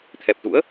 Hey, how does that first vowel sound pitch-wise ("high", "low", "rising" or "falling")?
low